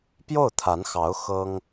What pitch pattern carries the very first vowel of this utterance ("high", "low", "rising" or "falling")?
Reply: falling